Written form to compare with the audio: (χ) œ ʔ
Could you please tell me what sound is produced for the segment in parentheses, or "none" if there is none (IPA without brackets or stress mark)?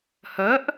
h